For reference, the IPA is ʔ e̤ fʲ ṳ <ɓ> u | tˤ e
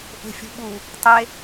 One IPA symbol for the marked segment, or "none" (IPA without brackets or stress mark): ɓ